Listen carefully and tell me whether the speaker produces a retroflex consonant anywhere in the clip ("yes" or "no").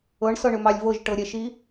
yes